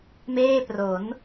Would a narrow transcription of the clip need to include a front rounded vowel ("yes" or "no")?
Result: no